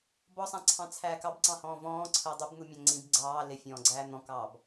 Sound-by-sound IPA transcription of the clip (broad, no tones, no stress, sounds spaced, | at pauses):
b ɔ sˤ æ̃ ǀʰ ɑ̃ t͡sʰ æː k ɑ b ǀ ɑ̃ h ɔ̃ː v ɔ̃ː ǀʰ əː dˤ ə b n̪ u mʲ æ̃ ŋ͡ǀ ĩ b ɡ͡ǀ ɑː l ɪ fʲ ɔ̃ː ɡ͡ǀ æː n̪ ɔ̃ k ɑː b